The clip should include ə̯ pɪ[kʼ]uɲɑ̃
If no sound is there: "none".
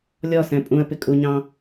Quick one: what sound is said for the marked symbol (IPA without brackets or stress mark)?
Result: kʼ